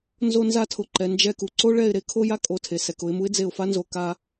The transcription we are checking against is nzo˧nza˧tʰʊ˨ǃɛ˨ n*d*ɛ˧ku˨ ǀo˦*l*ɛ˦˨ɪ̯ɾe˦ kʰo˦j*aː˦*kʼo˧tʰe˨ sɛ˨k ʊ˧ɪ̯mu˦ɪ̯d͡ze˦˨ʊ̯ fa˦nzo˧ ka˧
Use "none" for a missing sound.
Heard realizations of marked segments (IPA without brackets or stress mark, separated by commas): d͡ʒ, ɭ, a˦